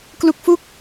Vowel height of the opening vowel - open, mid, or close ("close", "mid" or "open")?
close